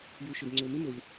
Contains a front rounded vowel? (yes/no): yes